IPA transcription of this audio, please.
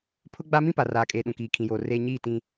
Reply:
pʰ ʊ˦ ɡ͡b a˦ m ĩ˦ p a˨ r aː˨ kʼ eː˨ ɗ ũ˨ k iː˨ kʰ ĩ˨ j oː˨ r eː˦ ɲ iː˦˨ t ĩ˦

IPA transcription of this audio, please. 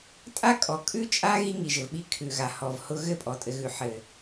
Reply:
tʼ a˦ kʼ ɔ˨ kʼ ʉ˦ t͡ʃʼ a˦ ɣ i˦ ŋ i˨ ʒ ɘ˨ v ɓ i˦ kʰ ʉ˨ ɣ a˨ h ɔ˨ v h ʊ˦ ɣ ɘ˦˨ pʼ ɔ˨ tʼ ɘ˨ ɣ ʉ˨ ħ ɘ˨

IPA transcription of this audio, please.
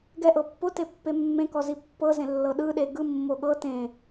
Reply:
ɡ ɛ ʔ ɤ pː o t e pː e mː ẽ k ɔ z i pː ɤ z ẽ lː ɤ ɗ ɯ ɗ e ɡ ɯ mː o ɠ ɤ t ẽ

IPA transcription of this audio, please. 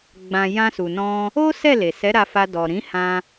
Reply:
ɡ͡b ã˨ j ã˧ s u˨ n ɔ̃˧ | o˦ s ɛ˦˨ l e˨ s ɛ˨˦ ɾ a˧ f a˧ d ɔ˨ ɾ ĩ˨˦ h ã˧

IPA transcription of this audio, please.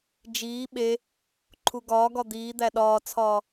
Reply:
d͡ʒ iː ɓ e | ǃʰ u ɡ ɒː ɡ ɒ d̪ iː d̪ æ ɗ ɒː t͡sʰ ɒː

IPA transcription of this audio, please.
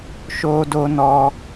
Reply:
ʃ o˦ d o˦ n ɔ˦

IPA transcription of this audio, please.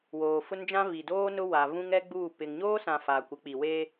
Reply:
w oː˨ f ʊ˦ n d͡ʒ ã˦ v i˨ d oː˦ n ʊ˦ w a˨ v ũ˦ ŋ ɛ˦ ɡ͡b uː˦˨ p ɪ˨ ŋ ɲ oː˦ s ã˨ f aː˨ kʷ ɪ˨˦ k͡p i˨ w e˦

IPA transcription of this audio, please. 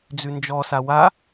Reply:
d͡z ʉ n d͡ʒ ɔ s a w a

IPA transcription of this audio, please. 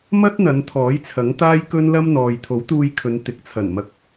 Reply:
m ɐ˥ t̚ n̪ ɐ˨˧ n t̪ʰ ɔː˨˥ j t͡sʰ ɐ˨˥ ŋ t̪ aː˥ j k ɵ˥ n l ɐ˥ m n̪ ɔː˨ j t̪ʰ o˨˥ w t̪ uː˧ j kʰ ɵ˨˧ n t̪ ɪ˨ k̚ t͡sʰ ɐ˨˩ n m ɐ˨˥ k̚

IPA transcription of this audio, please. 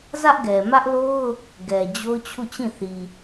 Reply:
z ä˦ ʔ ɡ ɛ˨ m ä˦ ʔ l o˦ ʊ̯ | ɡ ɛ˨ d͡ʑ o˦ ʊ̯ t͡ɕʰ u˦˨ t͡ɕ ĩ˦˨ θ i˨

